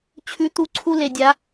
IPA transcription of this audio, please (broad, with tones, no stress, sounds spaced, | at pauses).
t͡ɕʰ ʉ˧˥ t̪ u˧˥ ǀʰ u˥ l e˧ dʲ a˧˥